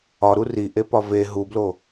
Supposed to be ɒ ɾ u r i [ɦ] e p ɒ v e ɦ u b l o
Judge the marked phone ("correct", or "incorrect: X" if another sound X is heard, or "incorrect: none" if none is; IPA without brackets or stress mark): incorrect: ʔ